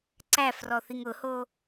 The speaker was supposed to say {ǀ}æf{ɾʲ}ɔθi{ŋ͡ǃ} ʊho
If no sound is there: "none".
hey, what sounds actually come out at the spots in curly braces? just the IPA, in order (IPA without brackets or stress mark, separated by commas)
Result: ǀ, r, ŋ